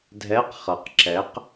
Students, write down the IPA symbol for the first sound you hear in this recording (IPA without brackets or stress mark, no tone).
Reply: dʱ